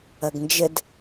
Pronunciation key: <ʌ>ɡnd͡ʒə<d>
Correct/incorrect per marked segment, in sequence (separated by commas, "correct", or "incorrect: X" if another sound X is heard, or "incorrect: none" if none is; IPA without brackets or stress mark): correct, correct